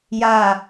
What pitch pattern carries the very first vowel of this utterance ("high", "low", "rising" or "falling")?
falling